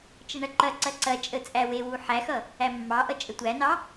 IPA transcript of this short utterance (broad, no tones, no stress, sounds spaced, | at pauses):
t͡ʃ ə ɳ ɐ ǃ ɐ ǀ ɐ ǀ ɐ t͡ʃʼ ə t͡sʼ æ w e w u ħ æ x ʌ | æ mː ɑ ʔ ʌ t͡ʃʼ ə tʷ æ n ɑ